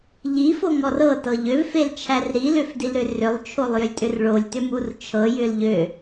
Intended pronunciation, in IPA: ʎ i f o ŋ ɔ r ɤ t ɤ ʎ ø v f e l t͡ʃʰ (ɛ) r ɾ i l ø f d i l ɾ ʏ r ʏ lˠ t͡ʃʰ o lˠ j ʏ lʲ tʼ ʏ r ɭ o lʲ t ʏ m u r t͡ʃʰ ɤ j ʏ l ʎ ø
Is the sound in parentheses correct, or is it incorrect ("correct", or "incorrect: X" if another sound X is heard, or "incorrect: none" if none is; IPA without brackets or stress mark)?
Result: incorrect: æ